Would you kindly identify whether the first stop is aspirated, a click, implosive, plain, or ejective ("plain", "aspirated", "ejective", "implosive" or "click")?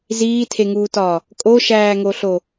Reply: aspirated